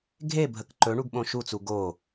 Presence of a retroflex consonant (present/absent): present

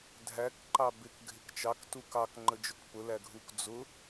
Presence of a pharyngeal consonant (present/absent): absent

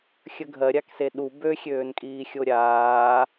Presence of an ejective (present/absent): present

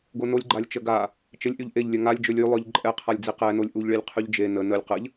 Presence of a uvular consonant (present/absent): present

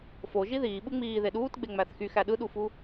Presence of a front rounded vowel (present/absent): present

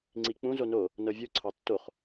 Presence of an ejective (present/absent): absent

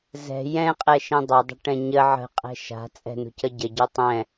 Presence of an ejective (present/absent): present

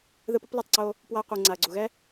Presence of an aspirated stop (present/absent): absent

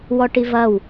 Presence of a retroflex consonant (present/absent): present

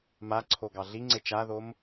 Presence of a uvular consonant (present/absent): absent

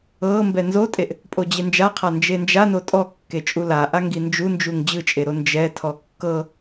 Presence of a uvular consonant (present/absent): present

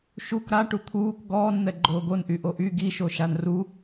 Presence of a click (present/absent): present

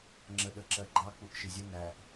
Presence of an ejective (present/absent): absent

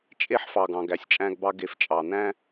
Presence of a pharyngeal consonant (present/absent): present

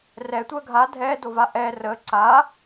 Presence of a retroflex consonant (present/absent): absent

